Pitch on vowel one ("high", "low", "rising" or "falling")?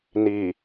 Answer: low